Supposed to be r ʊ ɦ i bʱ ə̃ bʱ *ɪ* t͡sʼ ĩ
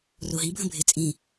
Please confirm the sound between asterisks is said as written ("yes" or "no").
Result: yes